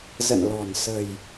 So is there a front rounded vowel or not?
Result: no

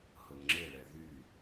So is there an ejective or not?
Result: no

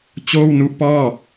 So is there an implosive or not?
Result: no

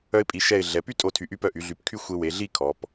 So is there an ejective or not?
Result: yes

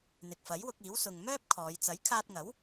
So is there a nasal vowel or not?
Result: no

